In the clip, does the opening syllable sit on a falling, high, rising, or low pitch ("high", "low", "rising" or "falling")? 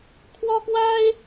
high